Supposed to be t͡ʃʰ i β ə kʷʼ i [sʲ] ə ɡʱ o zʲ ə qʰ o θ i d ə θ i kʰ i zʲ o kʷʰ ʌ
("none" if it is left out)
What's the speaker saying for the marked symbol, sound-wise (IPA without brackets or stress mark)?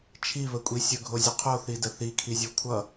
sʲ